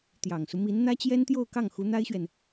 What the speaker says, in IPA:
t̪ j ɑ˨˩ ŋ s u˦ m i˧˥ n n̪ ä˥ t͡ɕ j ɛ˥ n t̪ j o˥˧ ʊ̯ k ɑ˥˩ ŋ x u˧˥ n̪ a˥ ɪ̯ ɕ ɥ ɛ˨ n

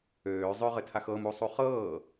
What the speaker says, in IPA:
øː zˤ ø ʁ ɘ tʰ a x ɤ m u sˤ u χ ɤː

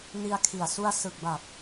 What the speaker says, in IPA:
n i˧ a̯ kʰ i˨˩ a̯ s u˧ a̯ s ɯ˨˩ k̚ b a˨˩ p̚

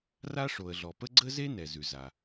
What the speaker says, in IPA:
r a˥ ʂ o˩ ə̯ ɮ ɔ˩ p ə˥ ɡ͡ǀ ə˥ z e˥ n ɛ˩ z ʉ˩ z a˩

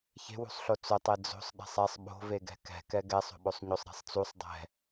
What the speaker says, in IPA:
ç e̤ w ṳ sˤ ɬ o t͡s ʊ tˤ e d͡z o̤ sˤ ɗ ɛ̤ sˤ ɛ sˤ ɓ o̤ v e ɡ ɛ̤ k ɛ̤ k ɛ ɡ ɛ sˤ o̤ ɓ o sˤ ɲ o sˤ ɾ e̤ sˤ t͡s u sˤ dˤ ɛ̤

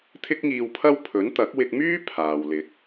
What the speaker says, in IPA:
t̪ʰ ɪ˥ k̚ ŋ iː˧ w pʰ ɐ˥ w pʰ ɵ˨˥ n t̪ ɐ˨˥ k̚ w ɪ˧ k̚ m yː˥ pʰ aː˨ w l ɪ˨˥ k̚

